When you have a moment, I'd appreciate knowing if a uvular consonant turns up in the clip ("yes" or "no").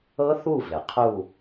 yes